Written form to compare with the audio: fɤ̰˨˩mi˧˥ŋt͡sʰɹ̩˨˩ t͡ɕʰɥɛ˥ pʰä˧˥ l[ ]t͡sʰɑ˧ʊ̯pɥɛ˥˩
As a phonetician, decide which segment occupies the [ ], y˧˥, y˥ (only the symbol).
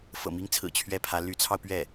y˧˥